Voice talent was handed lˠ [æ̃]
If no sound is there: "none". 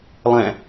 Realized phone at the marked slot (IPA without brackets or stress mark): æ̃